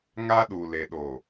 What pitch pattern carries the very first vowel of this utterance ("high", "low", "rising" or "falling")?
high